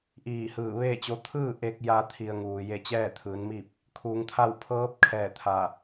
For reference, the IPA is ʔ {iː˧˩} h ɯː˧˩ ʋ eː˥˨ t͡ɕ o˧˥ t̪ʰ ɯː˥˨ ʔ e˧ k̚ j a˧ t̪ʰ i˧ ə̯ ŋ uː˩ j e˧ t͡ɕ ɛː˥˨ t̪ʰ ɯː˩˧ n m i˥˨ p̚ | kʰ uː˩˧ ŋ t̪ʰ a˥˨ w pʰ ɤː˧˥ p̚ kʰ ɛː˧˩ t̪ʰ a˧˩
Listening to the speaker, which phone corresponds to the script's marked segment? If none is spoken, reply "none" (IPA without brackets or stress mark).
iː˧˩